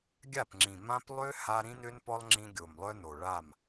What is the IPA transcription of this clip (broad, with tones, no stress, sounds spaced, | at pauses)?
ɡʲ a˦˨ p ŋ͡ǁ ĩ˨ m ã˦ p lˠ ø˦ h a˦ ɾ ĩ˦ n ø˦ n p ɔ˦ lˠ ŋ͡ǁ ĩ˦ ɡʲ o˨ m lˠ œ˦ n o˨ ɭ a˦˨ m